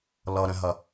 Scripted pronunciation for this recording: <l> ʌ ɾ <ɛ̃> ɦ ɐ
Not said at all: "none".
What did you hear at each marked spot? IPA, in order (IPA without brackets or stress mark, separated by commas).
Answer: l, ɛ̃